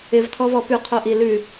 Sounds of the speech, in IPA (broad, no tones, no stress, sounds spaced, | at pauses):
ɪ v tʰ ɔ v ɔ p ʉ qʰ o ʔ i l ʉ